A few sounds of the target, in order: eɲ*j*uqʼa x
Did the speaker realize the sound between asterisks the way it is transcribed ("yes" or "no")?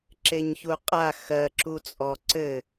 no